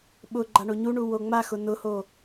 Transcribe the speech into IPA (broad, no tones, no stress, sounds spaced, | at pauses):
ɓ ʊ ɡ͡ǃ a ɳ o ɲ u ɳ u w o ŋ͡m a x ʊ n ʊ h o